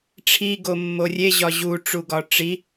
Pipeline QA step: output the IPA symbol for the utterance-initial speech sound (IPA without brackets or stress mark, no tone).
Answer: ʈ͡ʂʰ